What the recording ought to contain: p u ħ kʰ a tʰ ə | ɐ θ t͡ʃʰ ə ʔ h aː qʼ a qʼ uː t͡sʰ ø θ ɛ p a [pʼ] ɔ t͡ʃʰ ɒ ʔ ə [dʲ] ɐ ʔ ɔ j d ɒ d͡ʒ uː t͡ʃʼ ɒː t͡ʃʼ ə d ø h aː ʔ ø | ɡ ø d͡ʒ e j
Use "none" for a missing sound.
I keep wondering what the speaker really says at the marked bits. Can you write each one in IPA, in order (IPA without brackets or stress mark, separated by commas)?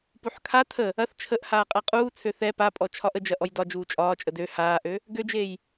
pʼ, d͡ʒ